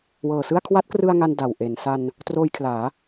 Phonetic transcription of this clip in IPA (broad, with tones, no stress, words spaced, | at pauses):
wɤː˨˩sɯ˥˩a̯ kʰwa˦˥t̚krɯ˧a̯ ŋa˧n da˨˩wʔe˩˦n sa˧n | troː˧jkʰlaː˩˦